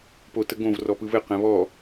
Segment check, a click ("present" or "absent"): absent